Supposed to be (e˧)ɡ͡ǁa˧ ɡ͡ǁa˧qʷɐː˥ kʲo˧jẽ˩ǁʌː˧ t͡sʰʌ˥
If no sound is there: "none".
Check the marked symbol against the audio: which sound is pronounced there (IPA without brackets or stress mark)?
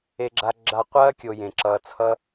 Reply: e˧